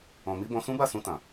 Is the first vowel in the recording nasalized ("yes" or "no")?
yes